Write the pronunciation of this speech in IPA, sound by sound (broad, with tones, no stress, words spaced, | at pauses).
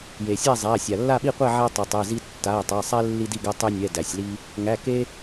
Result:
je˩sʲæ˥˨zˤæ˩˧˩sʲa˩ lːa˥˨ɓi˥˨qʷɛ˥˨ʕæ˦ tˤɛ˩tˤe˩˧˩zi˦ tːa˩˧˩e̯tˤa˩˧˩sˤɛ˦ lːi˦di˥˨ɡæ˦ tˤe˦nʲɛ˩˧˩ dæ˩sʲli˦ | ŋæ˩˧˩ ke˦